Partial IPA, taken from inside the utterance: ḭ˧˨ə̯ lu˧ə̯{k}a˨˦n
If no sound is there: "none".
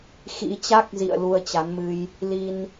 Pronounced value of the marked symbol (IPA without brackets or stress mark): t͡ɕ